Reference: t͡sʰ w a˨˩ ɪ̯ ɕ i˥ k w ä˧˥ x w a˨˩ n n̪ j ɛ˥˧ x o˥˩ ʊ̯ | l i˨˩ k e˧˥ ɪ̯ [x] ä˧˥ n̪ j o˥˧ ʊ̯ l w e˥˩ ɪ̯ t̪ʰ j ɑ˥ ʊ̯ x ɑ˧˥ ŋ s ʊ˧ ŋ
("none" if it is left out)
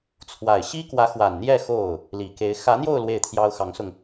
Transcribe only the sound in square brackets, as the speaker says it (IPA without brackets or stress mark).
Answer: x